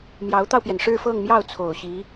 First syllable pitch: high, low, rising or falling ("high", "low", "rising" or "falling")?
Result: rising